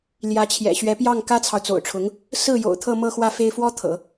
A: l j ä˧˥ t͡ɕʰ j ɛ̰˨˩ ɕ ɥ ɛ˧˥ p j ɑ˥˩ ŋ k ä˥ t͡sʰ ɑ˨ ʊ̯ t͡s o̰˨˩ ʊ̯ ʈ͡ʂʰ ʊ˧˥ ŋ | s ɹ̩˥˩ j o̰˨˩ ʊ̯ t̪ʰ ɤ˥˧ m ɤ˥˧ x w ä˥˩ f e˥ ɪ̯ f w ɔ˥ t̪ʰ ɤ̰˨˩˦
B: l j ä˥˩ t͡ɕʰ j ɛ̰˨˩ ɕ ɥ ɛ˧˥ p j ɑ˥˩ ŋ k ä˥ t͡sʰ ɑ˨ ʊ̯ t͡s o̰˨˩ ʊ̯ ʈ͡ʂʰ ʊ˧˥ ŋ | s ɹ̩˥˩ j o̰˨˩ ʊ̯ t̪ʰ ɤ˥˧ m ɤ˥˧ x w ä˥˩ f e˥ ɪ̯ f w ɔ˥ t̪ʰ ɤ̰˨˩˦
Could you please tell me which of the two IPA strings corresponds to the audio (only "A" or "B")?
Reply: A